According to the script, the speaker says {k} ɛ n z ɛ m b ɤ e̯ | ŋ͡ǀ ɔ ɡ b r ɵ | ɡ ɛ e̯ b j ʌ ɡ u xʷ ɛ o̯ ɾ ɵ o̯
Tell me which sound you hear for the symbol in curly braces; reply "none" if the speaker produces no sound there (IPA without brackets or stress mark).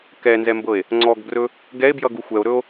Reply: k